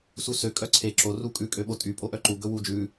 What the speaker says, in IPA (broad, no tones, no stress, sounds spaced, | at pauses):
s u s ø kʼ œ ǀʰ e ǁ o r u kʼ ʉ kʼ ø ɓ o tʼ y pʼ o ʔ œ ǃ u ɡ ɵ w u d͡ʒ ʉ